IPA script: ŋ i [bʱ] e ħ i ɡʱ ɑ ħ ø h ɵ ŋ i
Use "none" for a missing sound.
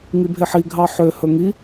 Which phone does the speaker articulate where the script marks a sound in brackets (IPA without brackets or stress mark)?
bʱ